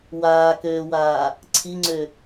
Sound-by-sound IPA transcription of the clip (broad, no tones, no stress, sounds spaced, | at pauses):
w aː k øː w aː | ǀʰ i ŋ͡ǀ ø